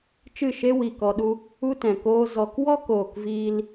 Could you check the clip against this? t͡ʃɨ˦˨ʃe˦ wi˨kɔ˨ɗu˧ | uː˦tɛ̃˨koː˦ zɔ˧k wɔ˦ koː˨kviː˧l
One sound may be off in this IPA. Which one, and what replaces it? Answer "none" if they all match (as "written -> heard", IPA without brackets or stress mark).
uː˦ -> u˦